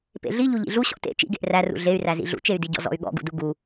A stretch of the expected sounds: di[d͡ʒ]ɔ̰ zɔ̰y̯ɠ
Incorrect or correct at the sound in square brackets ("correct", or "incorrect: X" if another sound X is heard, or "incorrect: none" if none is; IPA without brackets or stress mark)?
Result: incorrect: ɟ